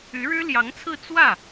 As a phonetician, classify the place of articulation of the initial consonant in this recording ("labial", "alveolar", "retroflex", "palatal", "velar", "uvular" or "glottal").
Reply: retroflex